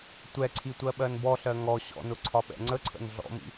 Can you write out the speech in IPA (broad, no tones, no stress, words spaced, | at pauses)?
tʷɛǀʰi tʷɜɓɜnbɔɬɜ ŋɔ ɕɔ̰nʊ ǀʰɒɓɛ̰ŋ͡ǀəǀʰə̰n ɮɔ̰mḭ